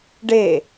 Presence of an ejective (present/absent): absent